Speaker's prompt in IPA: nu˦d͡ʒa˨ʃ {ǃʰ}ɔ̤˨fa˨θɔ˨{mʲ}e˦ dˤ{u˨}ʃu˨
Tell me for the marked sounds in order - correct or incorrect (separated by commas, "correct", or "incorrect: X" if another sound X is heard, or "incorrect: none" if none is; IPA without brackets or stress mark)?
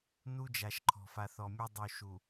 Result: correct, correct, correct